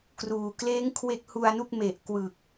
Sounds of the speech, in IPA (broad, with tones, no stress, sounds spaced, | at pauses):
k r uː˨˩ k l eː˦˥ ŋ kʰ w e˦˥ k̚ h u˧ a̯ n u˥˩ k̚ m e˨˩ ʔ k w ɯ˨˩ k̚